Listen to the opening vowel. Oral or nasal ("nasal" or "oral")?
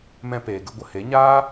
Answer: nasal